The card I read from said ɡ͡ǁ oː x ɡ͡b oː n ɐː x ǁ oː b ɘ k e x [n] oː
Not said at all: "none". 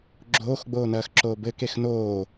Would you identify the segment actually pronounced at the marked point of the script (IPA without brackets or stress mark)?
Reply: n